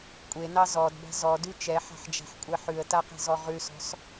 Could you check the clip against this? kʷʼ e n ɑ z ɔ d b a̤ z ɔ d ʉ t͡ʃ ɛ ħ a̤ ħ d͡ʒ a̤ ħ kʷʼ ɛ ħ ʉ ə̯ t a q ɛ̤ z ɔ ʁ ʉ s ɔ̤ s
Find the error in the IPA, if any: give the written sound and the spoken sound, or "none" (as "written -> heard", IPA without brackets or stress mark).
none